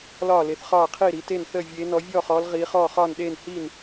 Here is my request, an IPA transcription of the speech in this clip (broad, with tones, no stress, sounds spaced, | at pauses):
l ɒː˥˩ l e˨˦ θ χ ɒː˥˩ qʰ iː˥˩ ɾ i˨˦ t e˥˩ n θ əː˥˩ vʲ eː˨˦ n ɔ˨˦ vʲ ɔː˥˩ χ ɔː˨˦ l ʁ iː˨˦ χ ɔː˥˩ χ ɒː˥˩ n ɗ eː˥˩ n h iː˥˩ n